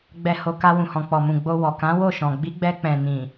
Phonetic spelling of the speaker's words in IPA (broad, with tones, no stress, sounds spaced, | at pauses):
ɡ͡b ɛ˨ h o˨ k a˧ w ũ˨ h ɔ̃˨ k͡p ɔ˨ m ũ˨ ɡ͡b o˧ w ɔ˨ k ã˨˦ w o˦˨ ʃ ɔ̃˨ ɡ͡b i˨˦ ɡ͡b ɛ˧ k͡p ɛ̃˨ n ĩ˨